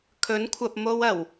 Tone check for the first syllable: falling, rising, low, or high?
rising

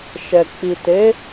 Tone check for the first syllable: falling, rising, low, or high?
low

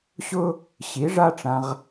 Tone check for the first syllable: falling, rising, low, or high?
high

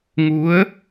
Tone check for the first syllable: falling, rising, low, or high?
rising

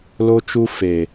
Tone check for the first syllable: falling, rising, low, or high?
high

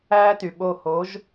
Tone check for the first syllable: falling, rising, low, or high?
high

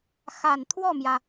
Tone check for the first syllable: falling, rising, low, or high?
low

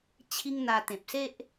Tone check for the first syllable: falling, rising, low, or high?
high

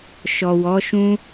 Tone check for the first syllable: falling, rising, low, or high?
low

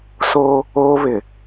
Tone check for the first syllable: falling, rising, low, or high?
high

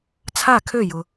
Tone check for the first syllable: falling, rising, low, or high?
falling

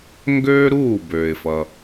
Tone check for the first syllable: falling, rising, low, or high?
high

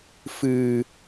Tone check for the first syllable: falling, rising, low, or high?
low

